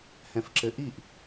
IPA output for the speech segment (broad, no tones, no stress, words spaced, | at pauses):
hɛ̃fǁɘʔiʔ